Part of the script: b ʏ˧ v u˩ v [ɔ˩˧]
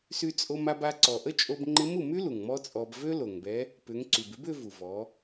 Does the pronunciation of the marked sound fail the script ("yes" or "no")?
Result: no